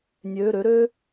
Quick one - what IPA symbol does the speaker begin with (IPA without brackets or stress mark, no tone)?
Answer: nʲ